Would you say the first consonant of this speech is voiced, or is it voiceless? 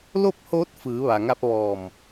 voiced